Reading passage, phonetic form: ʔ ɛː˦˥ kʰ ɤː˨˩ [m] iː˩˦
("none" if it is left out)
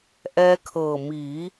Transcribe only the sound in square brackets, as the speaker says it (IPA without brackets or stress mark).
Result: m